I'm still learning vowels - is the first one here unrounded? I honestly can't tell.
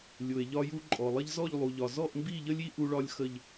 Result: no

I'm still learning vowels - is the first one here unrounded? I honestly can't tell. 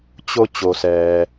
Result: no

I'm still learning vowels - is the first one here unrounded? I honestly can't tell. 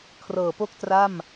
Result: yes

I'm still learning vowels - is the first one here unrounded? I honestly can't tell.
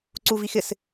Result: no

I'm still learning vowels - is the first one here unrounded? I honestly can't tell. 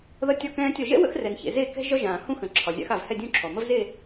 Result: yes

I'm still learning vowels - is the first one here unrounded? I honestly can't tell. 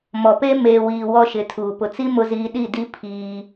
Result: no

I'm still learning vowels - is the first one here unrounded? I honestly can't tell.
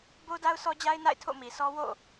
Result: no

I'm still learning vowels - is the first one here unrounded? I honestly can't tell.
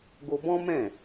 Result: no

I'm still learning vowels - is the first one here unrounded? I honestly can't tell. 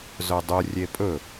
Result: no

